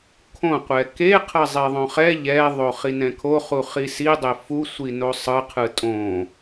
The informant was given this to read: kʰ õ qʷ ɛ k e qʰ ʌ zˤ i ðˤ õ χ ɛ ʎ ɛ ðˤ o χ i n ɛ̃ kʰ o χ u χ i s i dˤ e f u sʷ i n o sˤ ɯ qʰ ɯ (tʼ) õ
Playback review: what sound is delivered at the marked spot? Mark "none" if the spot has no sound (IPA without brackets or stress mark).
tʼ